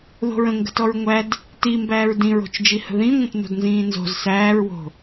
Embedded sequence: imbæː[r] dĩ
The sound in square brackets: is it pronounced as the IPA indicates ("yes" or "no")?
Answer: no